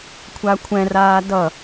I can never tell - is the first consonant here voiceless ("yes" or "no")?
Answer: yes